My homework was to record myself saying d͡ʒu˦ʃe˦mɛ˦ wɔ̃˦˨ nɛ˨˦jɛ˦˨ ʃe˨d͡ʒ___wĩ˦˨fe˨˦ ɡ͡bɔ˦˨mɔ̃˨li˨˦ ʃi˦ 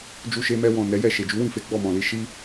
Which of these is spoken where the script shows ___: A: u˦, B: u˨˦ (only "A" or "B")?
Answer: B